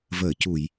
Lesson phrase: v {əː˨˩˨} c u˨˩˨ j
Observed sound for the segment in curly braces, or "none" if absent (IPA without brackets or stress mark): əː˨˩˨